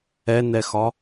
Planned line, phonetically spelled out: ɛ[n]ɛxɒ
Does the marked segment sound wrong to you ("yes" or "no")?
no